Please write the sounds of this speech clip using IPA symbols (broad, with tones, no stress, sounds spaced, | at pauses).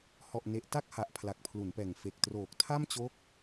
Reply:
h ɔ˨˩ ʔ n e˨˩ ʔ t a˥˩ k̚ h a˨˩ ʔ pʰ l a˨˩ k̚ pʰ l u˩˦ n p ɛː˨˩ ŋ f e˨˩ k̚ t r oː˨˩ k̚ tʰ a˥˩ m t͡ɕ o˦˥ k̚